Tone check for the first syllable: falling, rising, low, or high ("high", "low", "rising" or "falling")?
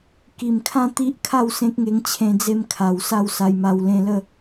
low